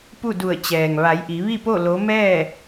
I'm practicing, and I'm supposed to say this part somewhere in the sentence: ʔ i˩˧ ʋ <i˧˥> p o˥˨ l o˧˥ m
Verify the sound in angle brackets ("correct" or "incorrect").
incorrect